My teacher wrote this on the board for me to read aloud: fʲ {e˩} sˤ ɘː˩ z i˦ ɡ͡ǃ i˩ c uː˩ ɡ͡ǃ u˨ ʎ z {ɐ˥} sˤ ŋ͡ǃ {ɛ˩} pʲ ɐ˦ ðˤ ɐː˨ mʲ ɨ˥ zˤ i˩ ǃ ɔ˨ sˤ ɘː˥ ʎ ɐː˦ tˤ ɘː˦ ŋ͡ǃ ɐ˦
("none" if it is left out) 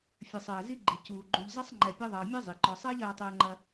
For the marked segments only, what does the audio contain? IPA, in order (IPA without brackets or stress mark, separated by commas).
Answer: ɨ˩, ɐ˥, ɛ˨